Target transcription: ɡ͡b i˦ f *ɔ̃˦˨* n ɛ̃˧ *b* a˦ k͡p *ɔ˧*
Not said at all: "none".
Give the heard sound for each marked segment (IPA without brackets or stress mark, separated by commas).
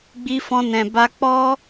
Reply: ɔ̃˦, b, ɔ˦